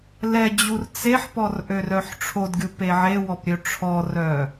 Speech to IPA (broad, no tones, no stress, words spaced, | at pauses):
lɛd͡ʑur t͡seħpɔr ʔørœħʈ͡ʂʰodɡʲu peʕewɔp ɾʲøʈ͡ʂʰɔrœ